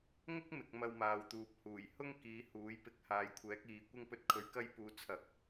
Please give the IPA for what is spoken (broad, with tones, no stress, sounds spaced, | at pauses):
ŋ ʊ˥ k̚ m ɪ˨ k̚ m ɐ˧ w m aː˨ w t̪ uː˨ p̚ h uː˨˩ j h ʊ˥ ŋ k iː˨˧ h uː˨˥ j p ɪ˧ k̚ h aː˨ j kʷʰ ɛː˨˥ k̚ iː˨ kʷ ɪ˥ ŋ p ɵ˥ t̚ kʰ ɵ˧ ɥ k ɐ˥ j p uː˨˧ t͡sʰ ɐ˨˥ k̚